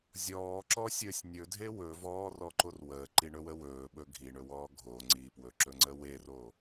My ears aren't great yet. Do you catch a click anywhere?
yes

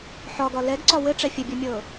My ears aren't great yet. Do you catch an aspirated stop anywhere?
no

